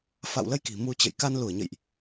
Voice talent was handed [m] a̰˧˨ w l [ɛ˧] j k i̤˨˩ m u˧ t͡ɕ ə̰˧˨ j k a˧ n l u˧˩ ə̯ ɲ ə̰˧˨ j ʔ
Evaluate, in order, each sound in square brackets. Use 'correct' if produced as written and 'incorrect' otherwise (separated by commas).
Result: incorrect, incorrect